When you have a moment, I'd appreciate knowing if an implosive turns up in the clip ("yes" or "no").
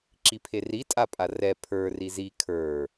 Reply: no